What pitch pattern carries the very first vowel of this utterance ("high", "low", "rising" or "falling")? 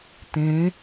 rising